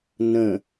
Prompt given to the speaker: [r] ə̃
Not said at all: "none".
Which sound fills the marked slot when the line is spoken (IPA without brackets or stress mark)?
n